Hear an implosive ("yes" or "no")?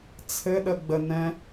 yes